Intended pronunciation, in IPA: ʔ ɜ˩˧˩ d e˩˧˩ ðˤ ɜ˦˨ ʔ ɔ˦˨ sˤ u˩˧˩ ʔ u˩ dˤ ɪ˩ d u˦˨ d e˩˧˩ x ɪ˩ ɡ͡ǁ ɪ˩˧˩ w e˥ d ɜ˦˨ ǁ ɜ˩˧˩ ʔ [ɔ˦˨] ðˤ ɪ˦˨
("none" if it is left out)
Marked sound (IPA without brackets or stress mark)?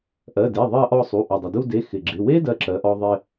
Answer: ɔ˦˨